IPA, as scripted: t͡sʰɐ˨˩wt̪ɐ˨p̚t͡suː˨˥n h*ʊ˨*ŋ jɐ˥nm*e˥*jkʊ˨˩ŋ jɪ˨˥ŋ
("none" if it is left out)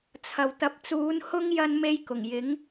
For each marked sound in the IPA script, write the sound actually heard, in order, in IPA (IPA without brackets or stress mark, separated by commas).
ʊ˥, e˥